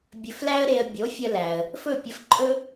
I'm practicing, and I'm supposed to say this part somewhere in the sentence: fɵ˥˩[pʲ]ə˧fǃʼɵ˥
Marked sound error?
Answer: no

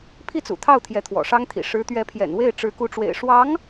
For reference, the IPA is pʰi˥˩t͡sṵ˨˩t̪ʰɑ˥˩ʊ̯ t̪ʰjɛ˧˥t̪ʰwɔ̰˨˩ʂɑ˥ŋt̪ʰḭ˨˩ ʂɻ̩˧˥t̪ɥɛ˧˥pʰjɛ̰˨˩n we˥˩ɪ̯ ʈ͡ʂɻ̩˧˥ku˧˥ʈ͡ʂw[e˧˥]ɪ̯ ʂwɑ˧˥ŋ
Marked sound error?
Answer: yes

